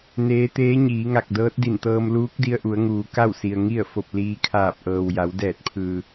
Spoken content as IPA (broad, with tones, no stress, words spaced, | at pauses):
neː˧˥ t̪eː˧˥ɲiː˩˧ŋa˧˩k̚ dɤː˧˥t̚di˧˩nt̪ɤː˧m luː˧˥k̚di˧ə̯ʔu˩˧ə̯ ŋuː˩ ka˥˨wsi˩ə̯ ŋi˥˨ə̯fo˧˩p̚liː˧kʰaː˧˩p̚ ʔɤː˩wja˩˧w dɛː˧˩t̚pʰɯː˩